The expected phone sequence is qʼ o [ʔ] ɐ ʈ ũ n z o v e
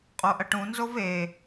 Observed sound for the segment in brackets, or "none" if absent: ʔ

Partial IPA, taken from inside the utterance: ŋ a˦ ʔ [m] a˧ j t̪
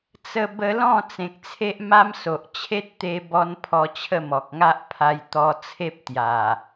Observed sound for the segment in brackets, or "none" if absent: pʰ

